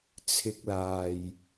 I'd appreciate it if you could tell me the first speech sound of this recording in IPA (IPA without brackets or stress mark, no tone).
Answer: t͡sʰ